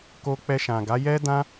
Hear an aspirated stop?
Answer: no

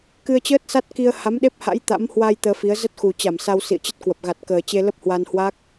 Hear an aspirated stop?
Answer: no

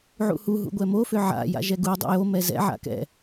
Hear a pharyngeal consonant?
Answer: yes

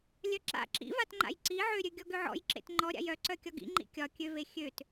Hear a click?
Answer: yes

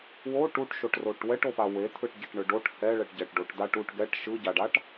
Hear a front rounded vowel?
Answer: no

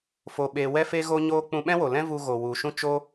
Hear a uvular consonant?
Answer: no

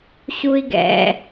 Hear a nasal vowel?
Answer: no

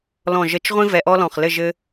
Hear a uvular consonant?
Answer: yes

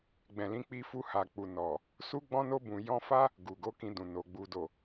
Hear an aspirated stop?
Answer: no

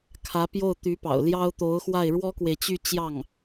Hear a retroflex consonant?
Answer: yes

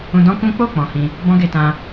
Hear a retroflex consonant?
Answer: no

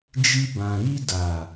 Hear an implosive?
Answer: no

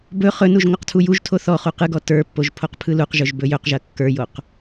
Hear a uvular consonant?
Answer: yes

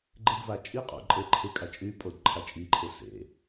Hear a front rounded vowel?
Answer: yes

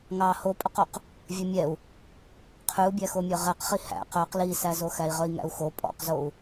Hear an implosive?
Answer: no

